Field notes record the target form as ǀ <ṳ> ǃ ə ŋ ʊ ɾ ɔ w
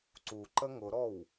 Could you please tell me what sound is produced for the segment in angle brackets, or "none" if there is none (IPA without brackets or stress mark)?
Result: u